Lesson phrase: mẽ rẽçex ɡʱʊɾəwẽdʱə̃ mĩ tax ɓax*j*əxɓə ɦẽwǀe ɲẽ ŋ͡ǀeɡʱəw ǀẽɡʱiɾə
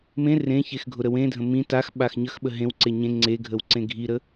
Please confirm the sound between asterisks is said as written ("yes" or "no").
no